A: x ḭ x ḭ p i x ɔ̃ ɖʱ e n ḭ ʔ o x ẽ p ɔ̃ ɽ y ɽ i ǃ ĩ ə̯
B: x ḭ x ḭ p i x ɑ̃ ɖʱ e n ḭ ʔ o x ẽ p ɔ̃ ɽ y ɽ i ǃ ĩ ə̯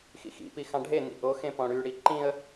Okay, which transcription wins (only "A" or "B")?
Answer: B